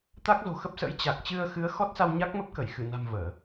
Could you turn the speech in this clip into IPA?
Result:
t̪ a˦˥ k̚ z o̤˨˩ x ə˦˥ p̚ s ə̰˧˥ j t͡ɕ a˨˩ k̚ t͡ɕ ɨ˧ ə̯ x ɨ˨˦ ə̯ x ɔ˦˥ t̚ s a˧ w ɲ a˦˥ k̚ m ə˦˥ p̚ k ə˧˩ j x ɨ˧˩ n a̤˨˩ m v əː˧˩˨

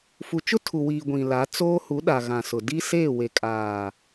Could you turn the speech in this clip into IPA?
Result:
f u˨ t͡ʃ ʊ˦ tʰ u˨ w iː˨ ɡʷ ĩ˨ l a˨˦ t͡s oː˦ h u˨˦ ɗ a˨ ɣ ã˨ s ʊ˨ d i˦ s eː˦˨ w e˨ kʼ aː˨

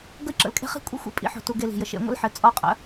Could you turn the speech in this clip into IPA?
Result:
ɡ ə˦ i̯ ǁ ə̰˨ l kʼ e̤˦ χ i̤˦ kʷʼ ḛ˦ xʷ ḛ˧ pʼ ḭ˨˦ ħ o̤˨ t u˧ ɡ e˧ l i̤˨ j ə˨ ʃ ḛ˧ ŋʷ ə̰˦ l ħ ɘ˨˦ t͡sʼ ɔ˧ qʼ ə̰˨˦

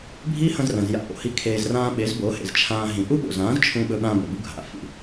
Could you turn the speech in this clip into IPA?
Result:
bʱ i˦ h ɐ̃˧ z r ɐ̃˨ z j a̰˧ ʔ o̰˨ h i˦ kʰ eː˧ z r ãː˧ ɓ e˨˦ z b o˨˦ h ḛ˨ z t͡ʃʰ ãː˧ ɦ ĩ˨ ʔ u˦ ɓ o̰˨ z ãː˨˦ z t͡ʃʰ ũ˧ ɓ ɵ˧ ɓ ã˧ b ɵ˨ b u˦ ɡʱ a̰˨ f ḭ˨

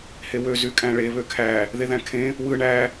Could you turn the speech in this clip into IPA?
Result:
h e w ø z y kʼ æ̃ ɭ e β ø kʰ æ | ð e ð æ̃ kʰ ẽ | w ɯ ɳ æ

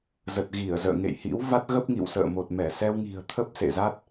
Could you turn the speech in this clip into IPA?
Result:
z ə˨˩ t̚ ɣ i˧˩ ə̯ z ə̰ː˧˨ ŋ ḛ˧˨ j h ḭ˧˥ w v a˦˥ t̚ ɣ ə˦˥ p̚ ŋ ḭ˧˨ w s ə̰ː˧˨ m o˨˩ t̚ m ɛ˧˩ s ɛ˧ w ŋ i̤˨˩ ə̯ t̪ʰ ə˦˥ p̚ s ḛ˧˨ z a˦˥ t̚

